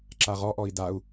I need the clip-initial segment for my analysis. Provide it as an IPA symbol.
ǁ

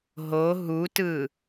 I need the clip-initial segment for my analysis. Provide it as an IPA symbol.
ɦ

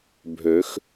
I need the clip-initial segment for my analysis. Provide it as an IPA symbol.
bʱ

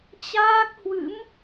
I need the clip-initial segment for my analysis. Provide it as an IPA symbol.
t͡ɕ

